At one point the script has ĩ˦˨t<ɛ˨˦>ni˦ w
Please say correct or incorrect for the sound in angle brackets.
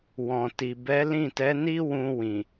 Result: correct